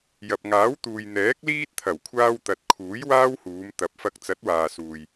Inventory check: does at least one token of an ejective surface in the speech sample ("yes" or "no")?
no